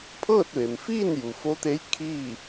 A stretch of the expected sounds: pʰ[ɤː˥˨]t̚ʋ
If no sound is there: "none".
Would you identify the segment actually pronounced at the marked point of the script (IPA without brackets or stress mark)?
ɤː˥˨